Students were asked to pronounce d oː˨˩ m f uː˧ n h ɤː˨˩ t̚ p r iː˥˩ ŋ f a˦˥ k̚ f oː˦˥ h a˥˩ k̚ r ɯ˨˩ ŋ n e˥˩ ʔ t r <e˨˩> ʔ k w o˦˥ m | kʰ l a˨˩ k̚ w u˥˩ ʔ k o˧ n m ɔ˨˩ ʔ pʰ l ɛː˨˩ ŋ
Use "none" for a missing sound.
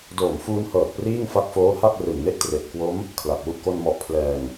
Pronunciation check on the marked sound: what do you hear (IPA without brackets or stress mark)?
e˨˩